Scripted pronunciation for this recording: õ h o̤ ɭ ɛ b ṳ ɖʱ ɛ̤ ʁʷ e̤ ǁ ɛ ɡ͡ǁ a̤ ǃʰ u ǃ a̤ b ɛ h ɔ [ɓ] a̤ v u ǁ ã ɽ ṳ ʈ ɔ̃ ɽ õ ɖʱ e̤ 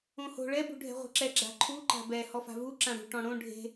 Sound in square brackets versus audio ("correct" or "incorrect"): incorrect